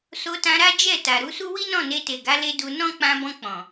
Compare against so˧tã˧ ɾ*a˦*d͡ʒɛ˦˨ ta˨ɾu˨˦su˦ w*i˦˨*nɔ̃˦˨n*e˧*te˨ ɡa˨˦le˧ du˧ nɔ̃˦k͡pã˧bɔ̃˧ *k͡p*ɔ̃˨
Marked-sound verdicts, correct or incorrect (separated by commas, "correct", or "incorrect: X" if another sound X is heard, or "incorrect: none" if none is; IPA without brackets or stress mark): correct, incorrect: i˦, correct, correct